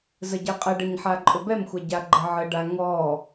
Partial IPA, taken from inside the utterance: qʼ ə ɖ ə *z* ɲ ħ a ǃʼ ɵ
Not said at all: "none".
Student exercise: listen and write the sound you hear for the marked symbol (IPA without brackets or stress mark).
none